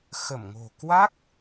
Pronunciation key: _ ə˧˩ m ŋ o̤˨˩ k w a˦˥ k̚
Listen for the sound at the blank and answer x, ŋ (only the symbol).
x